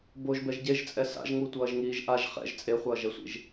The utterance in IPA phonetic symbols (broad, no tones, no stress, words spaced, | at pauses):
boʒbɛʒ ɟeʒt͡sʼɛ sa̰ʒŋutʷʌːʒŋiːʒ ʔaʒ χɛ̰ʒ t͡sʼeχʷʌːʒɛsʷḭʒ